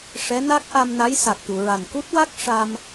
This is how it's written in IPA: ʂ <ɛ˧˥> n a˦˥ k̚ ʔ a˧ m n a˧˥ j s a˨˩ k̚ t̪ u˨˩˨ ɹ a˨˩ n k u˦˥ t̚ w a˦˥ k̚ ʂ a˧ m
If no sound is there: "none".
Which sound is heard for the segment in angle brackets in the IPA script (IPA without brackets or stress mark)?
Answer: ɛ˧˥